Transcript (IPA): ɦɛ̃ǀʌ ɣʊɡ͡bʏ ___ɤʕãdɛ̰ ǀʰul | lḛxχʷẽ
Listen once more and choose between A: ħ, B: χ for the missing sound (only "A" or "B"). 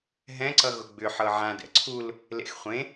A